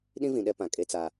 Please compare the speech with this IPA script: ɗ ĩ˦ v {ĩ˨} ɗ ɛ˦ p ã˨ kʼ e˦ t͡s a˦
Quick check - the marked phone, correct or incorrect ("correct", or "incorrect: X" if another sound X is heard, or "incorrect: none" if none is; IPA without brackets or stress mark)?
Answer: correct